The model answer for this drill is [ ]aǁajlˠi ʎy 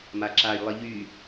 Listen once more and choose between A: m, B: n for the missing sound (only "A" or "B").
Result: A